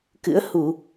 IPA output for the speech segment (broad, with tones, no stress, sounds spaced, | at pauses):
k ɨ̰˧˥ ə̯ h u˧˩˨